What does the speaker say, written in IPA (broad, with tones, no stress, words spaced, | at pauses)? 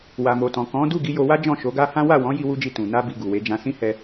wa˨mo˨tɔ̃˨kɔ̃˨˦ du˦˨ɡi˧ jo˧wa˦ d͡ʒɔ̃˦˨ʃo˨˦ɡa˦hã˦ wa˦˨wɔ̃˨˦ ji˦wu˦d͡ʒi˦˨ tũ˨ na˧bi˨ ɡu˨we˨˦ d͡ʒã˧sĩ˦hɛ˧